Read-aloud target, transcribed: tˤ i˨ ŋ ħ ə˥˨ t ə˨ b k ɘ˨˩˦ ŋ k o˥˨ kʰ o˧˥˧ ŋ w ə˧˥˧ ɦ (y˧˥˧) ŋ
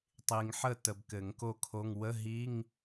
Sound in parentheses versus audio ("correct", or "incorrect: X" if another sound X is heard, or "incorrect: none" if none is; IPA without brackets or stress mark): incorrect: i˧˥˧